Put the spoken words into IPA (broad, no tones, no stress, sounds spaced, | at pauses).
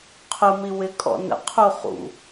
qʰ ʊ m i w ɪ kʼ ɔ̰ n ə̰ qʰ u χ ṵ